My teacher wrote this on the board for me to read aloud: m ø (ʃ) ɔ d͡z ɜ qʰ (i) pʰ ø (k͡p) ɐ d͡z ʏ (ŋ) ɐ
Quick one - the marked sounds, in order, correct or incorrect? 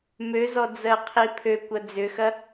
incorrect: z, correct, incorrect: kʷ, incorrect: x

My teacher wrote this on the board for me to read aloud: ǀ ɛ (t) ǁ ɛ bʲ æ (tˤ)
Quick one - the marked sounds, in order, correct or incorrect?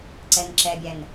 incorrect: n, incorrect: n

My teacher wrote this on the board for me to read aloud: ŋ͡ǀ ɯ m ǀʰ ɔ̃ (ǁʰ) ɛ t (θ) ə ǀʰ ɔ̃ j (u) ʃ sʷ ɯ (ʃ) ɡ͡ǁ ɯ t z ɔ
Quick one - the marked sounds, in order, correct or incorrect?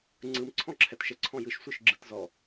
correct, incorrect: ʃ, incorrect: ɯ, correct

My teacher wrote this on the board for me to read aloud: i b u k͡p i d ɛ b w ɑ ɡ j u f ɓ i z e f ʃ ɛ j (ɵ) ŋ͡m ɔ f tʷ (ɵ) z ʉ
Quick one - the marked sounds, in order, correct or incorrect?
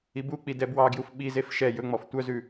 correct, incorrect: œ

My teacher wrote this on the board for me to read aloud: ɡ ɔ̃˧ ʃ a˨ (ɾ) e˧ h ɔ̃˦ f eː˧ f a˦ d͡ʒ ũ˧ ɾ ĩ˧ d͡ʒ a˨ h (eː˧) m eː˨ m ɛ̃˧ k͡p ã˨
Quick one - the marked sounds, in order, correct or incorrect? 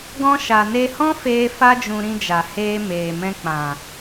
incorrect: n, correct

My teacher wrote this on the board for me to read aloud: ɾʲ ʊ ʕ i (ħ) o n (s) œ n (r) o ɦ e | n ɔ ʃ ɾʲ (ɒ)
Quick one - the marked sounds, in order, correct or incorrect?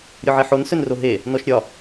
correct, correct, correct, correct

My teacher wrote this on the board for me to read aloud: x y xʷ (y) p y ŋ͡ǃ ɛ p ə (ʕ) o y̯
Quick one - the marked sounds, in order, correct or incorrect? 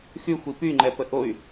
incorrect: i, incorrect: ʔ

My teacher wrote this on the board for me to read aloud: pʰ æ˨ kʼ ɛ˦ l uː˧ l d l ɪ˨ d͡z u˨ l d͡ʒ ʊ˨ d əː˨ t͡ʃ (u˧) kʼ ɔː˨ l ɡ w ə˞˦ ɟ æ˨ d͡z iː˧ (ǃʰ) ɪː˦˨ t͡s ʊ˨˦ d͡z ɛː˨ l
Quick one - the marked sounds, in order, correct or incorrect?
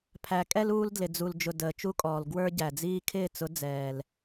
incorrect: u˦, incorrect: kʰ

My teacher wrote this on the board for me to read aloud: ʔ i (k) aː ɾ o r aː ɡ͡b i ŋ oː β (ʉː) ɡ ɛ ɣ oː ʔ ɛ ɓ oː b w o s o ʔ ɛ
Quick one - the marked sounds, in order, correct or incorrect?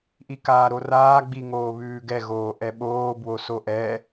correct, correct

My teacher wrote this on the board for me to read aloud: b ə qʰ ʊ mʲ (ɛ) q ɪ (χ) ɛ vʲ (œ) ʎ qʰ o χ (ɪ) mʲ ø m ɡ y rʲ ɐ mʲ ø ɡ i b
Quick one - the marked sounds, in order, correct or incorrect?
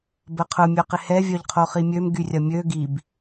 incorrect: œ, incorrect: h, correct, incorrect: i

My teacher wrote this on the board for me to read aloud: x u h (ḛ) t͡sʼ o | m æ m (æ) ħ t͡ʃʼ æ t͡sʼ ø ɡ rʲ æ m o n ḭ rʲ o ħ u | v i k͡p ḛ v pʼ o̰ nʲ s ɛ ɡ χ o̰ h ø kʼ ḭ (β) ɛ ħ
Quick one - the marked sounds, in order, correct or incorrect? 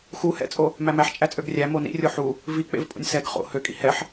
incorrect: ɛ̰, correct, incorrect: h

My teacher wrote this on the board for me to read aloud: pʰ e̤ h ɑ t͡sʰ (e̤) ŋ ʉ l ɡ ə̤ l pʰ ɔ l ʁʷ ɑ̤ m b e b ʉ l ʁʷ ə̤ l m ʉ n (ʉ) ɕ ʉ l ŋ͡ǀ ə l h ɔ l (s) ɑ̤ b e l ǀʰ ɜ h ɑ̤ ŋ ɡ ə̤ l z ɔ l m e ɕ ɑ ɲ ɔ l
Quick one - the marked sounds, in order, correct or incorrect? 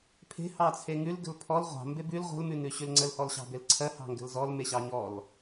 incorrect: e, correct, incorrect: ɕ

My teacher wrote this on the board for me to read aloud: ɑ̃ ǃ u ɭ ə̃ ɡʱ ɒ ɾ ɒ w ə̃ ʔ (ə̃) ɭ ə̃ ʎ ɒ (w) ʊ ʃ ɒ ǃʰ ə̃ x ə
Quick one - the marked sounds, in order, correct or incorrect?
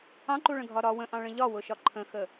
incorrect: ɑ̃, correct

